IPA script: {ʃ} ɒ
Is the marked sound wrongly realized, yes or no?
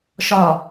no